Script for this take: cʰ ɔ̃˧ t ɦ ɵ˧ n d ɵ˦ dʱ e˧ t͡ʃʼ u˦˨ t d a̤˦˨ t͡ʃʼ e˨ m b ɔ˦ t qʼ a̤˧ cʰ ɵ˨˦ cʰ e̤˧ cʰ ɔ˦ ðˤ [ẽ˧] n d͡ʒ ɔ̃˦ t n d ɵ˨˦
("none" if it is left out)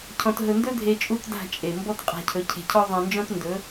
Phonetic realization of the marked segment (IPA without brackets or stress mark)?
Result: ẽ˧